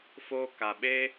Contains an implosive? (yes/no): yes